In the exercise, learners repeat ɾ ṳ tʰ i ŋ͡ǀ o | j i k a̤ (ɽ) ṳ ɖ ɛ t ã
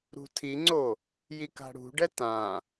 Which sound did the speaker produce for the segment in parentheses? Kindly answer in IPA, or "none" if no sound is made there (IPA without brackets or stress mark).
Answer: ɽ